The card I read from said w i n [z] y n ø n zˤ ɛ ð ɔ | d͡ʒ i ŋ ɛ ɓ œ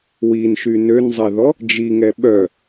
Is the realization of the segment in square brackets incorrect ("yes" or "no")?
yes